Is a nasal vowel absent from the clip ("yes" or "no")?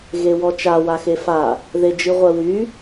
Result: yes